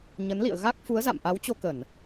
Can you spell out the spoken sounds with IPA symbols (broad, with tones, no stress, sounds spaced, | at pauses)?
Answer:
ɲ ə˨˦ n l ḭ˧˨ ə̯ ɣ a˦˥ k̚ f u˨˦ ə̯ z a̰˧˨ m ʔ a˨˦ w t͡ɕ o˧ k ə˧˩˨ n